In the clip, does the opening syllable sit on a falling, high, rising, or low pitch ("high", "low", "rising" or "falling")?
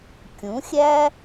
rising